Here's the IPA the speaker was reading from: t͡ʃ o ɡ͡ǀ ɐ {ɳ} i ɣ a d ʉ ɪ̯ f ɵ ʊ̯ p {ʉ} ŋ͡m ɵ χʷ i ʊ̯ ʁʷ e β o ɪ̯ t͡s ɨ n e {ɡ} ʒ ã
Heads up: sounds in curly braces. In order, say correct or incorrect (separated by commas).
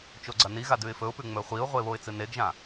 incorrect, correct, correct